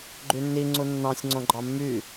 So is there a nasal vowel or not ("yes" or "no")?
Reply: yes